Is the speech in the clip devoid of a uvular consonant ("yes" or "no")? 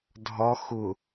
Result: yes